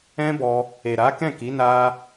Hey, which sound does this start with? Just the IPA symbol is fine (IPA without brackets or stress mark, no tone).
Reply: ɛ̃